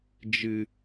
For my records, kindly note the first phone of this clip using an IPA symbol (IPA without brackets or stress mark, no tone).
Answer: d͡ʒ